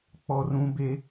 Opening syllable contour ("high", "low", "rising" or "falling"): high